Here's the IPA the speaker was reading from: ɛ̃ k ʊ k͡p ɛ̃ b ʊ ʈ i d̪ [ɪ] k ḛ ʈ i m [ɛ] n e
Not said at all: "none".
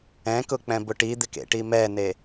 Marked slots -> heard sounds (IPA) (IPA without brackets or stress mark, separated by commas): ɪ, ɛ